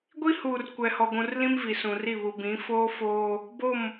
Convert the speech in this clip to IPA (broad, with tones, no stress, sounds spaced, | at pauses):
ɡʷ i˦ h uː˨ r kʷ ɛ˨ h ɔ˨ ɡʷ ũ˨ r l ĩ˦ m v i˨ s ũ˨ r i˦˨ β u˨ b ĩ˨˦ f oː˦ f oː˦ | b o˦˨ m